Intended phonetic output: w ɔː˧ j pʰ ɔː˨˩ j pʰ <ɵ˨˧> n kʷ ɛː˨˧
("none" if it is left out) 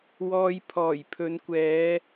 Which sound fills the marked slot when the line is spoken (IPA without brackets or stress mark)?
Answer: ɵ˨˧